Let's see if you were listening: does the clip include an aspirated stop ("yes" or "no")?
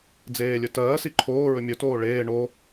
yes